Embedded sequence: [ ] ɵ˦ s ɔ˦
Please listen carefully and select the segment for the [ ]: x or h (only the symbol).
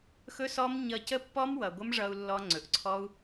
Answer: x